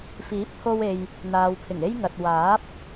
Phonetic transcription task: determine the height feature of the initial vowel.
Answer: high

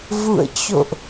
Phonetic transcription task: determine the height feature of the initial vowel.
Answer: high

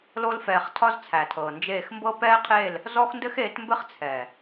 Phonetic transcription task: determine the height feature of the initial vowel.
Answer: mid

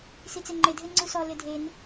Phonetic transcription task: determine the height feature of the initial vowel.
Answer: high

